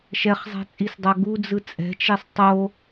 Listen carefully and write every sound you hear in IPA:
ʃ ɛ χ zˤ ɛ̤ t͡sʼ i s dˤ a ɡ u d͡z ɯ t͡sʼ ɛ̤ t͡ʃ e sˤ tˤ o

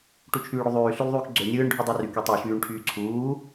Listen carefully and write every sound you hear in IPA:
ʈ u t͡ʃʰ yː ɽ y ðˤ yː ɬ y l ðˤ yː k ɡ͡ǀ ø nʲ ɯː ɳ ɖʱ u dˤ ø r y k y tˤ y ʃ yː ɳ ʈʰ yː ǀʰ uː

